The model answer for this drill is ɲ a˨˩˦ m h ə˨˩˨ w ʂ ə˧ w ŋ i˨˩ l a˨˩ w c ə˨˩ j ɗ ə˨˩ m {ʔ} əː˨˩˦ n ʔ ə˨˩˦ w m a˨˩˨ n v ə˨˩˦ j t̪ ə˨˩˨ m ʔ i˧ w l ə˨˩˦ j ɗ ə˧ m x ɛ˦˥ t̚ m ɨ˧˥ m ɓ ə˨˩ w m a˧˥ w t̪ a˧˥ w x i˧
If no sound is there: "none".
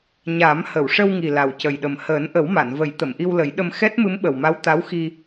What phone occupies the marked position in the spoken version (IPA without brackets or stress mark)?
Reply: h